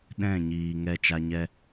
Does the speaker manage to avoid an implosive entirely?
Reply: no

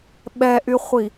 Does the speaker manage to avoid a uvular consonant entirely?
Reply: no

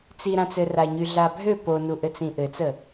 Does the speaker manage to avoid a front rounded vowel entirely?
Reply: no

